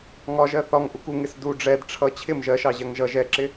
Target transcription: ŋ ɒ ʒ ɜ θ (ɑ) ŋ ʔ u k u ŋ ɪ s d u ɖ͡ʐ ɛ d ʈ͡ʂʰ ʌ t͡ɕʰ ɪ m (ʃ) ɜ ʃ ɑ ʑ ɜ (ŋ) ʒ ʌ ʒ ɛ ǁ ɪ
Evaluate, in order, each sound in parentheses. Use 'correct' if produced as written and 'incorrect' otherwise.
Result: incorrect: ɒ, incorrect: ʒ, correct

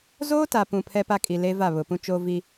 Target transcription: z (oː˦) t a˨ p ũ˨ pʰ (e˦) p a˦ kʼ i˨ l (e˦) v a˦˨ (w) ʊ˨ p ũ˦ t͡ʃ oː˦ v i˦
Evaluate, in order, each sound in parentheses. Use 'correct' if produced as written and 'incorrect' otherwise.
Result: correct, incorrect: ɛ˦, correct, incorrect: β

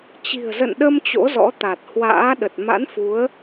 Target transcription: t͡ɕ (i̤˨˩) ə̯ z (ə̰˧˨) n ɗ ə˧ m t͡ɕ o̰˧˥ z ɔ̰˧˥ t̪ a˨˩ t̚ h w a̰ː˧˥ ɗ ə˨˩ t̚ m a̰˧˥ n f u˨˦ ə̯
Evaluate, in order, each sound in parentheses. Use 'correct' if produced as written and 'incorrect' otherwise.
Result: correct, correct

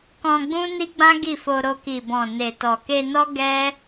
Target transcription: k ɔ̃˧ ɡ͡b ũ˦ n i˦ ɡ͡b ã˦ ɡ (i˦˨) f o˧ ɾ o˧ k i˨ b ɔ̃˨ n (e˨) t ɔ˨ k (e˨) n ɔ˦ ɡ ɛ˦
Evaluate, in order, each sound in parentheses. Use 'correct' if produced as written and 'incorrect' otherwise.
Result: correct, correct, incorrect: e˧

